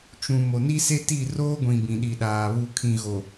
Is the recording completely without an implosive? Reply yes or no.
no